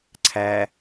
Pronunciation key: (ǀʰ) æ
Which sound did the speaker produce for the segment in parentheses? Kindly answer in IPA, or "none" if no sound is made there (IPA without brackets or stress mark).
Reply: ǀʰ